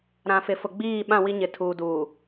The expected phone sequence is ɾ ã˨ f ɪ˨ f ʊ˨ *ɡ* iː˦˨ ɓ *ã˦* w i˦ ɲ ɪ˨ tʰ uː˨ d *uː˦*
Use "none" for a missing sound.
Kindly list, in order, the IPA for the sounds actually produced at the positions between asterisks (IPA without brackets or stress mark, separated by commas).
ɡ͡b, ã˦˨, uː˨